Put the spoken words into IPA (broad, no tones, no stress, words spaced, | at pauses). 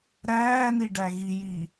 ɾæːniɖæ ɣijiː